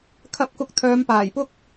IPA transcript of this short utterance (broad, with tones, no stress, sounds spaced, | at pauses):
kʰ ɐ˧ p̚ k ʊ˧ k̚ t̪ʰ œː˨˧ m p aː˨˩ j p ʊ˥ k̚